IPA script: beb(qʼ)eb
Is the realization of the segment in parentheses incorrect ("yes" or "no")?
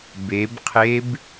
yes